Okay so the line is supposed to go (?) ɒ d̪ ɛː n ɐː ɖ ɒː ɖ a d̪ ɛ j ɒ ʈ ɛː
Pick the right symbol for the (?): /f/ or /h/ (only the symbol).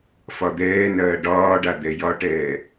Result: f